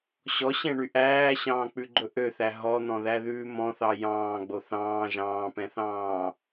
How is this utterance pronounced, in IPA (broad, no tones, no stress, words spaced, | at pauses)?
ɕɔɕɛ̃ɳy ʔæːɕɑ̃ːk͡pʉɡ͡ǃɵ ʔøθæ ɦɔn̪ɔ̃ðæðʉː mɔ̃θɑ jɑ̃ːɡ͡bo θɑ̃ː ʒɑ̃ːpɛ̃θɑ̃ː